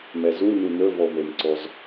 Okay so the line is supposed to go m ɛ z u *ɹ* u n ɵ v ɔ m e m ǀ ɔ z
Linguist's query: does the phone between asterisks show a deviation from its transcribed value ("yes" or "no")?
yes